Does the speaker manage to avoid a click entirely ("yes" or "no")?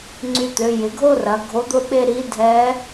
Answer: no